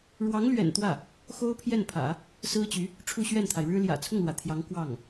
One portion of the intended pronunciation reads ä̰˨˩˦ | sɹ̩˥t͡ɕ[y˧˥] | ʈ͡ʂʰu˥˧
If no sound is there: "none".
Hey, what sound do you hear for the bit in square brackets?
y˧˥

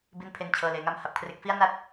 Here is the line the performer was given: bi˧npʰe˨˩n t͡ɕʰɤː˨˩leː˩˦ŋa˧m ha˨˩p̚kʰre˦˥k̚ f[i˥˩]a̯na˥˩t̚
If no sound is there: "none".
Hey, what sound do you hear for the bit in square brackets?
i˥˩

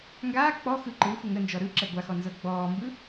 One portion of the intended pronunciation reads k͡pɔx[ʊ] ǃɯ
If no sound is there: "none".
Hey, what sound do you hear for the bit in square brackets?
ɯ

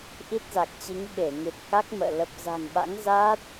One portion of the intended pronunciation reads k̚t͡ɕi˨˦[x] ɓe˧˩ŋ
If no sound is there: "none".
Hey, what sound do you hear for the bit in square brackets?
ŋ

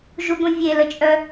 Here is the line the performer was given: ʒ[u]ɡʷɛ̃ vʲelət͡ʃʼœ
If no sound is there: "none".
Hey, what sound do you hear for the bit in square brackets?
u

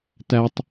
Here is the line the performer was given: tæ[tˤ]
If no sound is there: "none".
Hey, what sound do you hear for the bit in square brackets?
tˤ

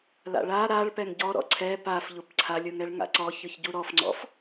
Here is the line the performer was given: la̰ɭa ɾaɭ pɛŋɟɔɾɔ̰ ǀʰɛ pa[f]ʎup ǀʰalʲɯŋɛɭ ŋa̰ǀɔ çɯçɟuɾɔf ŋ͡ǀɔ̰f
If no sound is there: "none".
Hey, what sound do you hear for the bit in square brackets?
f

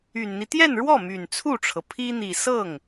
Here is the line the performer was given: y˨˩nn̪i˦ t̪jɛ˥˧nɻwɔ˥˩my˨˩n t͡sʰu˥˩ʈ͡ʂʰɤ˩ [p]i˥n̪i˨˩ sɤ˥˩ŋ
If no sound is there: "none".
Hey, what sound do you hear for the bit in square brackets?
pʰ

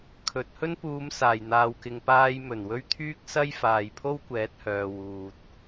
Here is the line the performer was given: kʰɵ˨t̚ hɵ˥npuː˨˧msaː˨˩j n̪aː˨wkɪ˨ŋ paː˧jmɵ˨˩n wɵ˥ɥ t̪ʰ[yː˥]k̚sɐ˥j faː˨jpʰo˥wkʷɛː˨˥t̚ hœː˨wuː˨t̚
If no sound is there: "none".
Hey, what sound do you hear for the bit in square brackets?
yː˥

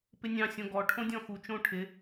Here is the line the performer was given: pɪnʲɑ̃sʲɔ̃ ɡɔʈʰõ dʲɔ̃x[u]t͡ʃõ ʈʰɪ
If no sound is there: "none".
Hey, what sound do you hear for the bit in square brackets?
u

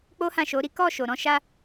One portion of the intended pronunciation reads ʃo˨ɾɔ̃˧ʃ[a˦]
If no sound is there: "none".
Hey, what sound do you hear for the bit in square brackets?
a˦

